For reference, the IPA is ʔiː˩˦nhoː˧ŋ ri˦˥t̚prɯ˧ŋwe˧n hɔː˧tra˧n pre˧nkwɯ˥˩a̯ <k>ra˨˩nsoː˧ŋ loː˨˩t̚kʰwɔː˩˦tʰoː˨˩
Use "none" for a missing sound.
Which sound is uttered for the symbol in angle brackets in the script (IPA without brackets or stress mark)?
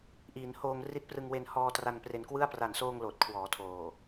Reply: p